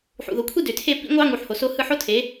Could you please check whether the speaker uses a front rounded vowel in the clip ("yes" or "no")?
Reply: yes